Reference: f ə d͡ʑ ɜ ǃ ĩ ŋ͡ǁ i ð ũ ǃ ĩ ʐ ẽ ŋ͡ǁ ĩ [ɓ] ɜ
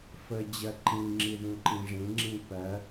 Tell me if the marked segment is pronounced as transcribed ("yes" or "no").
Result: no